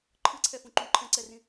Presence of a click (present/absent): present